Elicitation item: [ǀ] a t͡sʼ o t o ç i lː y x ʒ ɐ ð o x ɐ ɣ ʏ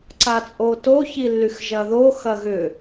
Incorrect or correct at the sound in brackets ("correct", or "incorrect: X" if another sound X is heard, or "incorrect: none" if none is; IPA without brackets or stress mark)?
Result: correct